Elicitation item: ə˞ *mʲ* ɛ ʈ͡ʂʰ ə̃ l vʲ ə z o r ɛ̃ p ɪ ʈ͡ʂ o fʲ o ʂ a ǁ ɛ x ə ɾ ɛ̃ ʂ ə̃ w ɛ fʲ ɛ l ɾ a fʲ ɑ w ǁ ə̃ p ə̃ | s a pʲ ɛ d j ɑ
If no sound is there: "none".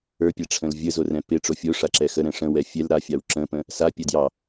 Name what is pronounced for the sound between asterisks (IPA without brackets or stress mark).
pʲ